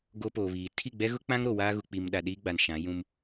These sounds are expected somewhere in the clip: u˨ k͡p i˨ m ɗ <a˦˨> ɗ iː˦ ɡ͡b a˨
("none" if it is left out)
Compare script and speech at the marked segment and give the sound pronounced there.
a˨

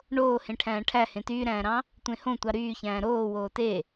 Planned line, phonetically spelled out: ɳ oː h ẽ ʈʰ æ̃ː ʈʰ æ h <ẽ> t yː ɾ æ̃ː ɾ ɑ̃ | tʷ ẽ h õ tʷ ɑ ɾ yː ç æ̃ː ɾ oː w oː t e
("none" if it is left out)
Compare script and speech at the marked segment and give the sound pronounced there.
ẽ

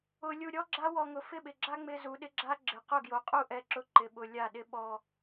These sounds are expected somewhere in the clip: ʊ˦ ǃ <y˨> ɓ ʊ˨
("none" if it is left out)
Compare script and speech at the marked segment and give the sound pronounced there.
ɪ˨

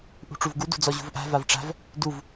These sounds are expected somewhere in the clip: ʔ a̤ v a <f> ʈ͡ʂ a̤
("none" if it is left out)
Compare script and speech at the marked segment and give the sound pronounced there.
v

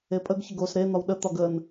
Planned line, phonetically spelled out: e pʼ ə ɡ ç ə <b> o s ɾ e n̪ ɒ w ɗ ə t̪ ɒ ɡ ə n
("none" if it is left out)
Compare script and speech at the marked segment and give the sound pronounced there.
ɡ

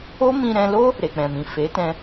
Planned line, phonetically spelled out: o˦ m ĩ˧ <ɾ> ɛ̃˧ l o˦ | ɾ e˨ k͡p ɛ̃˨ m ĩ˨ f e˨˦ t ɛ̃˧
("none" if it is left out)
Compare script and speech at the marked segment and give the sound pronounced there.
ɾ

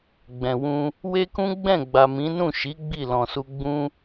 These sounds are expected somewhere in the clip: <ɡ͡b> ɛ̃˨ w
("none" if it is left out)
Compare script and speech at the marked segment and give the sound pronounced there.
ɡ͡b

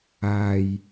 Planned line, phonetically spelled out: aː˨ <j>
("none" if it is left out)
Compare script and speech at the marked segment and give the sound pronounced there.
j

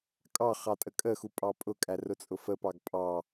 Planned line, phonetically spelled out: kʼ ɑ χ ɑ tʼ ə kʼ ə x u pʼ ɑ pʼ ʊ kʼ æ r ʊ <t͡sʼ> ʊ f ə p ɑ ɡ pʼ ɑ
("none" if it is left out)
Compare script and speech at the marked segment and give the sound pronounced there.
t͡sʼ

